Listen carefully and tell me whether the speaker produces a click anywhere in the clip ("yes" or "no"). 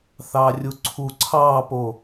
yes